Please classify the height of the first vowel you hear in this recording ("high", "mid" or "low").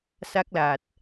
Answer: low